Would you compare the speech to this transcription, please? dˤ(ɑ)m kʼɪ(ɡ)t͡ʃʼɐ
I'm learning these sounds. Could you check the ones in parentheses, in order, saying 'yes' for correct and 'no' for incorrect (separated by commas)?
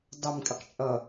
no, no